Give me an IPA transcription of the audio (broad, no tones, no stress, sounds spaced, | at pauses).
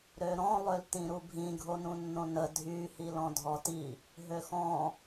ɾ ø ɾ ɔ̃ lˠ ø l t ĩ ɾ u bʱ ĩ ɡʱ o n ũ nː õ n ə dʱ y h i l ɔ̃ dʱ ɔ t i | ɦ ø x ɔ̃